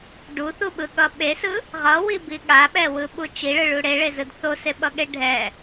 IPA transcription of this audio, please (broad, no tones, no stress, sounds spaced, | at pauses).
ɖ u θ u ɓ ɯ ɠ ʌ ɓ e s ɯ | ʁ ʌ w i b i ɠ a ɓ ɛ w ɯ ɓ u t͡ʃ i ɭ ɯ ɭ u ɽ e ɭ e z ɯ d θ o s e ɓ ʌ ɠ e ɖʱ ɛ